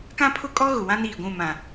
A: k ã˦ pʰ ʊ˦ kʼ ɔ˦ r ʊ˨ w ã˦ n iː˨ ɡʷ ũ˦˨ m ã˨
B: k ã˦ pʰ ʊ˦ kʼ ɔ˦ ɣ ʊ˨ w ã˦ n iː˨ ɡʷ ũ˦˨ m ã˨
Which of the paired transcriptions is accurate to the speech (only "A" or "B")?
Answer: B